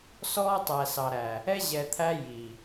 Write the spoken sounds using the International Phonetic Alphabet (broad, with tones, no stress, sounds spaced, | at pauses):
s ɔː˦ tˤ æ˨ s ɑ˨ ɾ æ˨ | ɛ˦ ʑ ɛ˨ t̪ʰ æ˦ j i˨